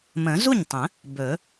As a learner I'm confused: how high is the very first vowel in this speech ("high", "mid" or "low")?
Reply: mid